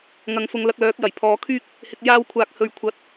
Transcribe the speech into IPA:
ŋ ɐ˨ ŋ f ʊ˨ ŋ l ɐ˧ k̚ l œː˨˥ k̚ j ɐ˨˩ j pʰ ɔː˨ kʰ yː˥ k̚ | h ɪ˨ k̚ j aː˧ w kʷʰ aː˨ k̚ h ɵ˨ ɥ kʷʰ ɐ˨˥ t̚

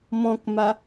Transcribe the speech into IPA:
m ɔ̃ k m a

